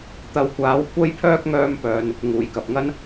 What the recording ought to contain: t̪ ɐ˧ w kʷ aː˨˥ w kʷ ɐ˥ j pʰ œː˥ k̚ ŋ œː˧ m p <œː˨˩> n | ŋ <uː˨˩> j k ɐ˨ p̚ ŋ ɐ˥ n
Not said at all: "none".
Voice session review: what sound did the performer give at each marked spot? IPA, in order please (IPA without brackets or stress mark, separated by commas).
œː˨, uː˨˩